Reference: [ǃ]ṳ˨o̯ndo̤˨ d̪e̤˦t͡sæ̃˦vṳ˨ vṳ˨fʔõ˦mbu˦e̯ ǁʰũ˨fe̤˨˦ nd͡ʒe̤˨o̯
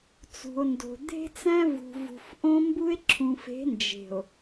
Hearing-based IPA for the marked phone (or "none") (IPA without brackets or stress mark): t͡s